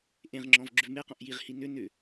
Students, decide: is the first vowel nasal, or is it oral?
nasal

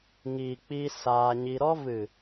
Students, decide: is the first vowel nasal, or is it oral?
oral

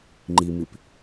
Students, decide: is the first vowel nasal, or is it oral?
oral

